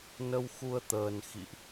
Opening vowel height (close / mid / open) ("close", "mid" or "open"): mid